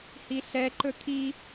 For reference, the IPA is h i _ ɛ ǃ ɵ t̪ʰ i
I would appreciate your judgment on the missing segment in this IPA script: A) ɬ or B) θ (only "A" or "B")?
A